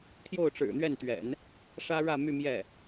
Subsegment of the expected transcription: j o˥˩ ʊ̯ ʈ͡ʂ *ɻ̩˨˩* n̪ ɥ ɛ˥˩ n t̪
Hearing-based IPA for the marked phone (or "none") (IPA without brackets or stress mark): ɻ̩˨˩